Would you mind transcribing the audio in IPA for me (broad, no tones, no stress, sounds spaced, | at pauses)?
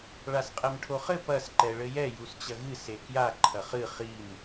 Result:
ɭ a s qʼ ɛ m ʈʰ o χ ɘ p ɐ s ǃ ɛ ɭ ɘ j ɛ j u s t͡ɕ ɐ ɣ ɨ s e k j a ǃʰ ɐ χ ɨ χ i m